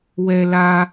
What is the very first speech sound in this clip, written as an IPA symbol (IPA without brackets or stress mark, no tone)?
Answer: w